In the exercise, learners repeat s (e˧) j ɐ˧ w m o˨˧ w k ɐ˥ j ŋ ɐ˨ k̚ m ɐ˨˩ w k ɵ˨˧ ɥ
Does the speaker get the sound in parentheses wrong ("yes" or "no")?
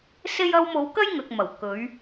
no